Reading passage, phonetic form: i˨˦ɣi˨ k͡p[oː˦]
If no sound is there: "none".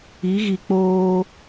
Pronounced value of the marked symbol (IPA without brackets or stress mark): oː˦